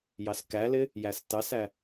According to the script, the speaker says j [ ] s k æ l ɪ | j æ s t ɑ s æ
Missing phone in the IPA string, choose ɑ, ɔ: ɑ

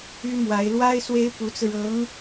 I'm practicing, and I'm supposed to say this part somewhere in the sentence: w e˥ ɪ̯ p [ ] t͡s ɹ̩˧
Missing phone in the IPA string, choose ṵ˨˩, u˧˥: u˧˥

